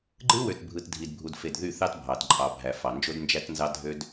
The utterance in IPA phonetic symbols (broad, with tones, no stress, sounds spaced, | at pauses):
ɡ͡ǃ ɯ˦ w ø˨ t bʱ ɯ˨ t dʱ i˨ d bʱ u˨ d f e˨ d ð y˦˨ θ ɑ˦ t bʱ ɑ˨ d ǃʼ ɑ˨ bʱ æ˨ f ɑ˨ n d͡ʒ o˦ d n d͡ʒ æ˦ t n z ɑ˦ dʱ ø˦ d